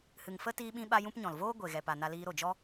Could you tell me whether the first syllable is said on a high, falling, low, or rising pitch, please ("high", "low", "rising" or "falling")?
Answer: low